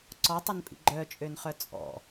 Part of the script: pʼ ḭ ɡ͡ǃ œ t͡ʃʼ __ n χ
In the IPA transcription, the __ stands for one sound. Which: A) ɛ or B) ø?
B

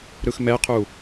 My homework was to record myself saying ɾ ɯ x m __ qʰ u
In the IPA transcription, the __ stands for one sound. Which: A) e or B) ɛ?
B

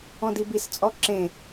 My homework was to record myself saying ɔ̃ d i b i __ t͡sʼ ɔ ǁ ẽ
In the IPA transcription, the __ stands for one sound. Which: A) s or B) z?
A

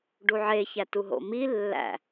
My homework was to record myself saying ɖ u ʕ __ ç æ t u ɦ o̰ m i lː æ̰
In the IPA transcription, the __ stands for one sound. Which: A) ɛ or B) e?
B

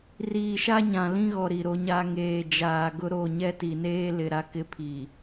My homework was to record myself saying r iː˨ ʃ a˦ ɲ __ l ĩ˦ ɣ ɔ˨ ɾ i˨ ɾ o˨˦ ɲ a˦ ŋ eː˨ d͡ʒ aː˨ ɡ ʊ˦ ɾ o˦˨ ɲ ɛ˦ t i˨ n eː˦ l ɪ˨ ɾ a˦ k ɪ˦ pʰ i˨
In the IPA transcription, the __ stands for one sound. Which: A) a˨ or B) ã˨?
B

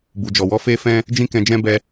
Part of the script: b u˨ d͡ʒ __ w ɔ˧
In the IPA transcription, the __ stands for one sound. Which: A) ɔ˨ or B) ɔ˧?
A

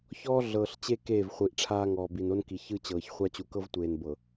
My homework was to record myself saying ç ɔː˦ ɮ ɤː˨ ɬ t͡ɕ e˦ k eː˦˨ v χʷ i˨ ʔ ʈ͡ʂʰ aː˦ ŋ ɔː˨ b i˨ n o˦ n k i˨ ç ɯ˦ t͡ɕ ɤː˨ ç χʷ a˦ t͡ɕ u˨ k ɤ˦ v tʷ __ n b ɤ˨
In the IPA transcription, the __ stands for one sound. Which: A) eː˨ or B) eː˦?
A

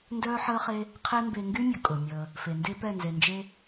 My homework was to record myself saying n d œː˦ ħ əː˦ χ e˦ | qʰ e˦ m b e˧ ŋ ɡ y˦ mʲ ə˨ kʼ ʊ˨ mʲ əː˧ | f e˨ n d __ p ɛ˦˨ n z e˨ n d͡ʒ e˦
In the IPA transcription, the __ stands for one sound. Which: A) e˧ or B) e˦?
B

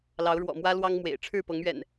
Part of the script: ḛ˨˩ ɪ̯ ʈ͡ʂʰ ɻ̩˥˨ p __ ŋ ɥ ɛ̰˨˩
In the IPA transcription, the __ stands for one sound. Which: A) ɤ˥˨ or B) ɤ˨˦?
B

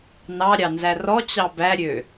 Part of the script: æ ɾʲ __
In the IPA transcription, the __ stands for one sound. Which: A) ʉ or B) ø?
B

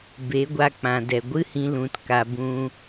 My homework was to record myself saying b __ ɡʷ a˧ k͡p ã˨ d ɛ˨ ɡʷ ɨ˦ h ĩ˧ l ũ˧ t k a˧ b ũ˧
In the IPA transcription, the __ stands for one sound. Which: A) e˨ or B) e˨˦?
B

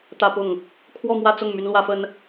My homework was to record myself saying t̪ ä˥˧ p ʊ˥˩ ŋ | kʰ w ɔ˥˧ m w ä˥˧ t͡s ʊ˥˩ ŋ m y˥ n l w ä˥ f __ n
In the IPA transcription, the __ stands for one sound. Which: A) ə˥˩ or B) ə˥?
B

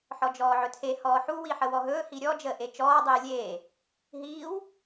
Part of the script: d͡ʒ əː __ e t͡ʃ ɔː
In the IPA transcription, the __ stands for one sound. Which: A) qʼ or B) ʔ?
B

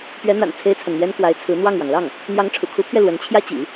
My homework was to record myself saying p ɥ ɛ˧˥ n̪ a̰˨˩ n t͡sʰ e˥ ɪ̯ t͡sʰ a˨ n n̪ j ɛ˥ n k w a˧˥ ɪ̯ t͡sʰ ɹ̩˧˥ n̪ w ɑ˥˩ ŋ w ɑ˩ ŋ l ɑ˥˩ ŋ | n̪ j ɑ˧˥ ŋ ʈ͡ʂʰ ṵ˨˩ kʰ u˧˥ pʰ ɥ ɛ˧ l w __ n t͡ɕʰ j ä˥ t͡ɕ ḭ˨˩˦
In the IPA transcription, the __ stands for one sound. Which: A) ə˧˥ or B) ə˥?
A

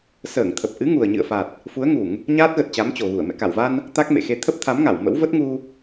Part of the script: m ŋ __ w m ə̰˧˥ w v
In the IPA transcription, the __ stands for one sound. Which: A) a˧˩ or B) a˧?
A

